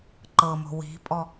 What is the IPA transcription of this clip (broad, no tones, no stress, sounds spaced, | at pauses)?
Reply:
ǃ ɤ m o̤ w i̤ pʼ ɔ